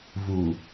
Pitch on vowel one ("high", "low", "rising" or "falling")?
low